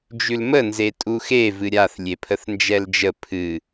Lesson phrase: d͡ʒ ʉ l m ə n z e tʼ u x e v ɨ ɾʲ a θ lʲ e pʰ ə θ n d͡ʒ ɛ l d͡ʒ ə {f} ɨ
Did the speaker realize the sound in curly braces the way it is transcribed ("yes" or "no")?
no